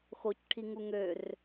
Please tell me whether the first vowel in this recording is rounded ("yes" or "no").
yes